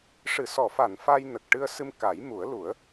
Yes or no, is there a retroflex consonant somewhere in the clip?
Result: yes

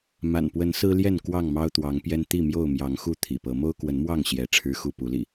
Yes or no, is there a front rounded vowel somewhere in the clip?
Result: no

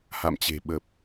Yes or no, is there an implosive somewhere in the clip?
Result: yes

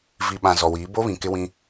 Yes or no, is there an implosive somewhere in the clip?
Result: yes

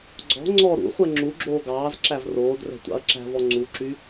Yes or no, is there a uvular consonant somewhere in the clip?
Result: yes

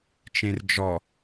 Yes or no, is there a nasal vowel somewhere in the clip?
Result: yes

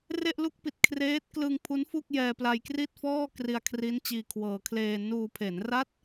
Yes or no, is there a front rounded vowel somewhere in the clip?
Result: no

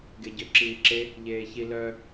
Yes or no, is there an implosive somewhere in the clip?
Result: no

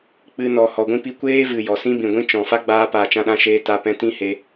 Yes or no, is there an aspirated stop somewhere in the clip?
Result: no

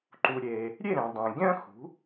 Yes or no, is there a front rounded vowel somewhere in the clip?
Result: yes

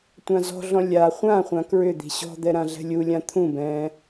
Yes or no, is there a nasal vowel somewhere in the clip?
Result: yes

